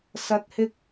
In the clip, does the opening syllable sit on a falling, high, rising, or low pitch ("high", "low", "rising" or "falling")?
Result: low